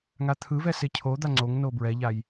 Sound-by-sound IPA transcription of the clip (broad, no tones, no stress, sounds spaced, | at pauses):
ŋ a t̪ʰ ɯ v ɛ s e cʰ o d̪ a ŋ͡ǀ o ŋ n o b ɹ ɛ ʎ a j